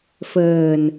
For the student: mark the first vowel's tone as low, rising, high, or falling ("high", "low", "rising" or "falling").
low